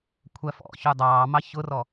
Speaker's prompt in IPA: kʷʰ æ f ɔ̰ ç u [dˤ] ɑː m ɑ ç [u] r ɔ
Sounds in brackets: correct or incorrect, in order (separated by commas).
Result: correct, incorrect